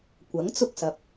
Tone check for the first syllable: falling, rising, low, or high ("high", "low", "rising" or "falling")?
rising